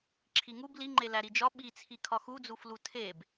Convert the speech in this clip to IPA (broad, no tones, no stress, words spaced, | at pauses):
ǁʰiŋub liŋ͡ǃe læɾid͡ʒɒ ɓit͡sʰi kʰɒxud͡zuflu tʰeb